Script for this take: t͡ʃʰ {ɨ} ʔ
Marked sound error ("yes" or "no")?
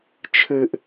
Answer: no